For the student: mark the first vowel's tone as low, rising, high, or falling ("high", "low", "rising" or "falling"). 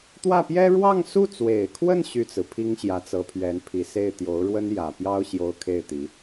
falling